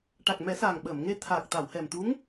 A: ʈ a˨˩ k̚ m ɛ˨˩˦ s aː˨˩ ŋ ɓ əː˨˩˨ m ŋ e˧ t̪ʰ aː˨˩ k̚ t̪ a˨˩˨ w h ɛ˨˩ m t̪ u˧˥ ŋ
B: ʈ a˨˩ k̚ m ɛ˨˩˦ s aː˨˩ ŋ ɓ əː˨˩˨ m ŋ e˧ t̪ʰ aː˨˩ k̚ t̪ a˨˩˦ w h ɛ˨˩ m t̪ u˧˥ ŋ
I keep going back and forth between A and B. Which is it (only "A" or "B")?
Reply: A